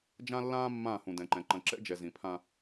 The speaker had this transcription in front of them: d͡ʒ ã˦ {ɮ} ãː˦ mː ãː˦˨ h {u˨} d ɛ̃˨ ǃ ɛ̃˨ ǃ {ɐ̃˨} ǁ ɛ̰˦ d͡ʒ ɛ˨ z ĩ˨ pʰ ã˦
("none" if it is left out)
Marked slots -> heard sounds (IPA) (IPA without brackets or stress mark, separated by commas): lː, ũ˨, ɐ̃˨